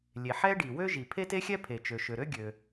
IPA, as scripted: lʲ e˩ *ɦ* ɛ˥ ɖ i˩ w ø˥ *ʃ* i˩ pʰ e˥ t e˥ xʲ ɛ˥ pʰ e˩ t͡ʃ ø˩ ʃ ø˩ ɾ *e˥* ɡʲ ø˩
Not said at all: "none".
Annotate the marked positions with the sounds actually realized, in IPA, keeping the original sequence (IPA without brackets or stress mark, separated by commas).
ħ, ʒ, ø˥